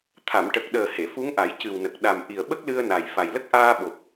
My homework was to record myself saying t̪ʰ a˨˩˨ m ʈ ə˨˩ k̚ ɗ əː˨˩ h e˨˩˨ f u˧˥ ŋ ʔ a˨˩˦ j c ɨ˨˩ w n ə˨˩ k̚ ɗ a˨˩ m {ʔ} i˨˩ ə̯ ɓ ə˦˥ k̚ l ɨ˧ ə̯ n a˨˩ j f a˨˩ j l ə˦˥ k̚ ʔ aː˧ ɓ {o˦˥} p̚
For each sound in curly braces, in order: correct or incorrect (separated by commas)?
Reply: correct, incorrect